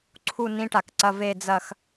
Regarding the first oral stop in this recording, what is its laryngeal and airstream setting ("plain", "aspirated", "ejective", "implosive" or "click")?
click